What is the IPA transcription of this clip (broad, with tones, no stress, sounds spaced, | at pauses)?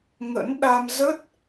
ŋ ə̰˧˥ n ɗ a˧ m z ə˦˥ t̚